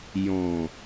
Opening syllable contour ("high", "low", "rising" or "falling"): low